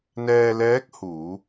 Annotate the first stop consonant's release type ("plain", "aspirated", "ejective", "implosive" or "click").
plain